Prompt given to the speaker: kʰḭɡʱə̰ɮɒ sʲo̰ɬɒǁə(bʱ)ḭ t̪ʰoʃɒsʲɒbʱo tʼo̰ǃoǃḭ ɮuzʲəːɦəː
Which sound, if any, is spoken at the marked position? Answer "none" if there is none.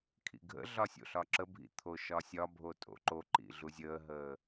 bʱ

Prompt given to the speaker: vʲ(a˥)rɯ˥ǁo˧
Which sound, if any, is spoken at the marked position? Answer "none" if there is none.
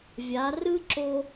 a˩˧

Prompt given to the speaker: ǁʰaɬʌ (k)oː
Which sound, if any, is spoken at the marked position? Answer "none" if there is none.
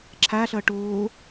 ʈ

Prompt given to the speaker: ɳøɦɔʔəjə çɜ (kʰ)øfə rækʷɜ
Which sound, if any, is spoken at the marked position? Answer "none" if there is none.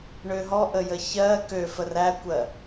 k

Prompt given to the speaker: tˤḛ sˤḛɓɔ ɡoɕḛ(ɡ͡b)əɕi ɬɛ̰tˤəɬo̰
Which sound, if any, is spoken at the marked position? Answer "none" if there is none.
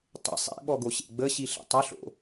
ɡ͡b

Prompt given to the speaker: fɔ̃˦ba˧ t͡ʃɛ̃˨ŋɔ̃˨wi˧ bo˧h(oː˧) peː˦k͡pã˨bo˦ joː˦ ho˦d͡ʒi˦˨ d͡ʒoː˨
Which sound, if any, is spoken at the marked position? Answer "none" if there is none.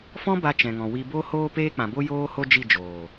oː˧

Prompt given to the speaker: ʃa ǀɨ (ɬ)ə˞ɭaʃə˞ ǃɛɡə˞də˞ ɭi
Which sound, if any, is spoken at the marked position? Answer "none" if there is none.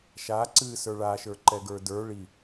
s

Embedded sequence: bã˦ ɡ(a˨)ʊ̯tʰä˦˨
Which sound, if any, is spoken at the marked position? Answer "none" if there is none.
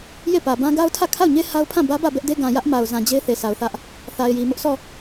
a˦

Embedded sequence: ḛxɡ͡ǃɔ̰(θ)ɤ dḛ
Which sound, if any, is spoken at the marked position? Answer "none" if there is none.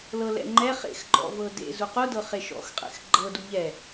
v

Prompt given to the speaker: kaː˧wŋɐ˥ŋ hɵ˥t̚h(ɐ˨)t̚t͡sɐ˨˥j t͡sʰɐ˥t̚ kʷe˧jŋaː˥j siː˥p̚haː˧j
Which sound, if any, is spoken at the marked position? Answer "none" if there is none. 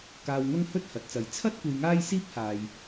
ɐ˨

